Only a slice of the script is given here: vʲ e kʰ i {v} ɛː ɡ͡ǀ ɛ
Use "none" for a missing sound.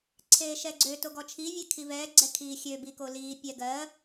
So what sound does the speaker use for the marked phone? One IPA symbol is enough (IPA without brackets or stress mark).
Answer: v